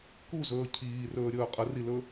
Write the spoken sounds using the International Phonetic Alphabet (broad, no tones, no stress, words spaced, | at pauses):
kuzɵː cʰiːrɵːɾʲɵː qʼərilɵ